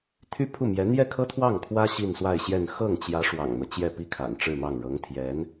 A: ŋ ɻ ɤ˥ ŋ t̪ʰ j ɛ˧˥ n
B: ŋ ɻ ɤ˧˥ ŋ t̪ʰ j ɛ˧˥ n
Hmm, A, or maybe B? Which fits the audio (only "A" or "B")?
B